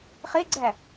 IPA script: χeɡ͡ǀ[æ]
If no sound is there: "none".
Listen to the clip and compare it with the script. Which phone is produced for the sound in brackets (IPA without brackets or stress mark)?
æ